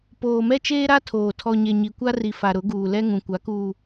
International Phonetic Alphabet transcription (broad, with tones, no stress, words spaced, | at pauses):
poː˨mɛ˦t͡ʃeː˦ɾa˦ tʰoː˨ tʰɔ˨ɲe˨ ɲi˨kʷa˦ri˨ fa˨ ɾʊ˨˦ɡuː˨lɛ˦ŋũ˨ kʷa˨˦kuː˨